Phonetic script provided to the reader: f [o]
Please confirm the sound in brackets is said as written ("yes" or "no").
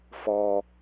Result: no